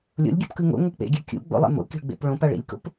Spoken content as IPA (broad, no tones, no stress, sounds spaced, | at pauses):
lʲ o̰ lʲ ɡʲ ṵ p k ɯ ŋ o̰ ŋ ɤ k͡p ḛ ɡʲ a kʲ ṵ ɡ͡b o̰ lˠ ḛ m o̰ k i̤ ɭ ɡ͡b ḛ p ɭ õ p a ɭ ḭ lʲ k o̰ p